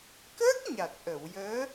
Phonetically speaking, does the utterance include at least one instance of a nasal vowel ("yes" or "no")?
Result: no